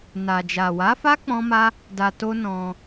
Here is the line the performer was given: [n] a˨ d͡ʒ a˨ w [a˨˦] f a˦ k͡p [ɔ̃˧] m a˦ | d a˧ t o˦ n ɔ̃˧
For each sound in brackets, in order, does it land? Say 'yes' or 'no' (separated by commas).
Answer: yes, yes, no